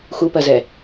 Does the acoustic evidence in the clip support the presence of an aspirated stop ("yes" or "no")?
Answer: no